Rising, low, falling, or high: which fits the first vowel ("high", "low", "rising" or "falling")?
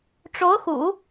rising